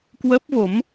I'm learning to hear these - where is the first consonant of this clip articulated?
velum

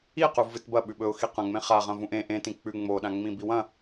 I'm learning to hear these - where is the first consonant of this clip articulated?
uvula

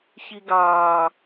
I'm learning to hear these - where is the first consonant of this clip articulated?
palate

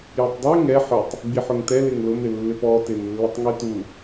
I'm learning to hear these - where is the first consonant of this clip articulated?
palate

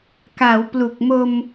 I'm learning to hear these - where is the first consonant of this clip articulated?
velum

